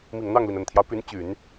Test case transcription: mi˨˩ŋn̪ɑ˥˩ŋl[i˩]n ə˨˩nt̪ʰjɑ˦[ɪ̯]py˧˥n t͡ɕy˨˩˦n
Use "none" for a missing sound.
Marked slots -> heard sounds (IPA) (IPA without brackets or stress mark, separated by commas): i˩, ʊ̯